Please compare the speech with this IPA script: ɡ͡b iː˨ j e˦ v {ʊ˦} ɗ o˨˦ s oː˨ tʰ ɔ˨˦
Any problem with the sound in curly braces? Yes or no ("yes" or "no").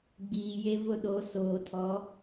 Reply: no